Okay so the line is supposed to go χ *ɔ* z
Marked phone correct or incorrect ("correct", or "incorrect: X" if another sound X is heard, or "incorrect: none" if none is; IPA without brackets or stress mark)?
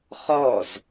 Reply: correct